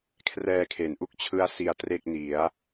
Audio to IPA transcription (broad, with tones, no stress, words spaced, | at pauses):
kʰrɛː˧kʰe˩˦nʔu˦˥k̚t͡ɕʰɯ˦˥a̯ si˧a̯tre˥˩k̚ni˩˦a̯